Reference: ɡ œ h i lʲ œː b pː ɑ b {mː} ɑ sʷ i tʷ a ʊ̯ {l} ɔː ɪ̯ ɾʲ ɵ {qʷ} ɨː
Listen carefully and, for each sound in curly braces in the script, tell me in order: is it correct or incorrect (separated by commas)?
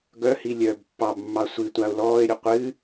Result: correct, correct, correct